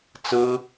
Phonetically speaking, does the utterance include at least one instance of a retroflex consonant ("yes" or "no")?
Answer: no